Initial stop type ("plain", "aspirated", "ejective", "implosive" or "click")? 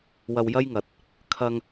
plain